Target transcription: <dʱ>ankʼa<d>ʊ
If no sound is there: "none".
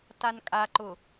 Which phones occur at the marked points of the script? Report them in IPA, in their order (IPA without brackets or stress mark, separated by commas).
t, ǃ